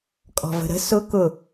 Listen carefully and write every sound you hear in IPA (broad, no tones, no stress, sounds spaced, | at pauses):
kʼ ɔ̤ v ə̤ ɾ ə̤ s ʊ k ʊ